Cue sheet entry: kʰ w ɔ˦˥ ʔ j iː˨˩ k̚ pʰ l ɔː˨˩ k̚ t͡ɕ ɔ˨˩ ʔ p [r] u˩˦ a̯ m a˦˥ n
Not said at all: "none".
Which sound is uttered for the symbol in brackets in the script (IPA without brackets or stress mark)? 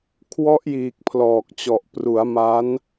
r